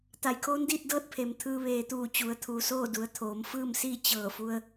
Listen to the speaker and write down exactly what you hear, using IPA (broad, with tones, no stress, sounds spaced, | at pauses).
t̪ a˩ j kʰ oː˧˥ n d iː˥˨ t̚ d ɤː˥˨ t̚ pʰ e˩ m t̪ʰ ɯː˧ ʋ eː˩ t̪ uː˧˩ t͡ɕ u˩˧ ə̯ t̪ʰ uː˩ s oː˥˨ d u˩˧ ə̯ t̪ʰ oː˩˧ m f ɯː˥˨ m s iː˥˨ t͡ɕ ɤː˧˩ f u˧ ə̯